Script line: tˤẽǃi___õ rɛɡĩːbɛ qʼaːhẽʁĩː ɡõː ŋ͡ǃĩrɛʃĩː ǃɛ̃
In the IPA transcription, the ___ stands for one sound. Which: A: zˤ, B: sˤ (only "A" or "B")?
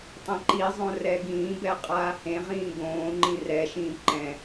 A